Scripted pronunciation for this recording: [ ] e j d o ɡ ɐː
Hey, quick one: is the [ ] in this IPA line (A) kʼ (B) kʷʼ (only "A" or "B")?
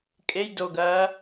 A